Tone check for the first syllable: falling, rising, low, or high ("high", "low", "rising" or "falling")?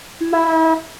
high